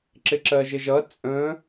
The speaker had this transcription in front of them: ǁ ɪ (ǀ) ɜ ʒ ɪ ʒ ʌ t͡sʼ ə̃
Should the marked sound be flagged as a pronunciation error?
yes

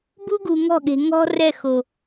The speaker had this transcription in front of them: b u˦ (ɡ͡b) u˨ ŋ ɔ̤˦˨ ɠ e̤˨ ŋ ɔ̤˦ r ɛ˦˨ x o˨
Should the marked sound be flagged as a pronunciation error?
yes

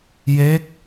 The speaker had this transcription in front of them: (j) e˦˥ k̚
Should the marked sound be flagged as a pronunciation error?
no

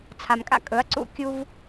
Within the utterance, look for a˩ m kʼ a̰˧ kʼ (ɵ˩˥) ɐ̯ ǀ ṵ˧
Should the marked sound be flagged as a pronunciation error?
no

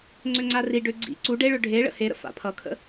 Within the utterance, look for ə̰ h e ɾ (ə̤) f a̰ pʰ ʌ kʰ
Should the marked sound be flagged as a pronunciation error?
yes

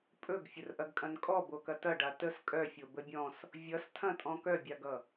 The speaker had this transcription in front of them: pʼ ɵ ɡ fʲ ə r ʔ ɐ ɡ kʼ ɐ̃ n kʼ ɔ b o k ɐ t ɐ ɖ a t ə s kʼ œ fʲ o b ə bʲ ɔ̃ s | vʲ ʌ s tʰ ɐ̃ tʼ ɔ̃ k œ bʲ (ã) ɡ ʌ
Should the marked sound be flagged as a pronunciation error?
yes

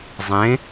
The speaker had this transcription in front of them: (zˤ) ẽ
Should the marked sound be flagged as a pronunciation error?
no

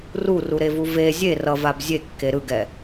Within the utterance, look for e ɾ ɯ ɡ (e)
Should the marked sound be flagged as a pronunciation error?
yes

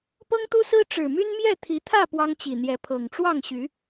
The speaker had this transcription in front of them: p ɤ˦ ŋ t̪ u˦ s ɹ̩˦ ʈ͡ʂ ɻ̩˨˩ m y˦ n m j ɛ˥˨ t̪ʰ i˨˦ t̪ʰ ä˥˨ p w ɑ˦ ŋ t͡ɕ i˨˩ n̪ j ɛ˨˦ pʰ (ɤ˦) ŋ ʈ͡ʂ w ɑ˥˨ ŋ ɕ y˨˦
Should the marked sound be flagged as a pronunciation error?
yes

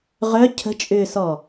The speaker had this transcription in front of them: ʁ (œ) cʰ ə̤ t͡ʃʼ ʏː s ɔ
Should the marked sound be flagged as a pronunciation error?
no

